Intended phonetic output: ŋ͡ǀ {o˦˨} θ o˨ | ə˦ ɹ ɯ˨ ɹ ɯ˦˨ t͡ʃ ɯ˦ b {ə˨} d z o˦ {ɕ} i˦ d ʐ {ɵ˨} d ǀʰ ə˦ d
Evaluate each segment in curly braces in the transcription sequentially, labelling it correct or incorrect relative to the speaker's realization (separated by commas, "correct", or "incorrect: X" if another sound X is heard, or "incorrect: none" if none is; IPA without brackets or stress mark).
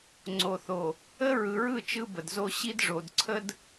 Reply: incorrect: o˨, correct, correct, incorrect: o˨